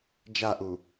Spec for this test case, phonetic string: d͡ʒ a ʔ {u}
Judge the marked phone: correct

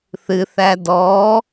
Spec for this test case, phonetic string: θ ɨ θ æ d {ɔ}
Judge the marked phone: correct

